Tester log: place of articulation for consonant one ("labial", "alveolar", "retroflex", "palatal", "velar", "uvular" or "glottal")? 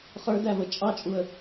uvular